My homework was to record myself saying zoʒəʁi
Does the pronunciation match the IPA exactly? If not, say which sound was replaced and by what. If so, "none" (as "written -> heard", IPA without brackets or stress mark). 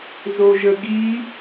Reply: ʁ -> ɡ